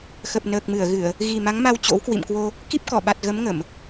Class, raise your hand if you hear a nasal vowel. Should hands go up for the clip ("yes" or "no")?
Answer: no